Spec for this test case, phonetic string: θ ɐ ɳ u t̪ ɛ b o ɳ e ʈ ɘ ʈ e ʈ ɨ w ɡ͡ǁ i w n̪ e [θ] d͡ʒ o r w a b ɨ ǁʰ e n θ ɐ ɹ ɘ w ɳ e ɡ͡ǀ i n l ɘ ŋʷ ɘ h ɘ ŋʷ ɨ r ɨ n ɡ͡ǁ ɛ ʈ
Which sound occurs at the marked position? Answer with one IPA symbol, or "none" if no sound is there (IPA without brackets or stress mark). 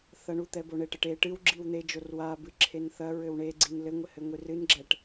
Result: none